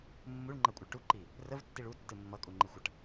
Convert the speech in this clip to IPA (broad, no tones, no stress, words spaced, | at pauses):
mːuɭŋ͡ǃɜkʷʼəɭ ʈuǃi | rəvtːiɭ utːɨ mːʌkʼuŋ͡ǃɨxʷʌʈ